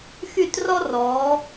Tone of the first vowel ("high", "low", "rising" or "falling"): falling